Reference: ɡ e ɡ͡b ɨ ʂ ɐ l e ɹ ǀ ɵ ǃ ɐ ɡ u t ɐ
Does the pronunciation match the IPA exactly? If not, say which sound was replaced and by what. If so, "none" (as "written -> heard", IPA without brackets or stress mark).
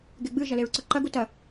ʂ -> ʒ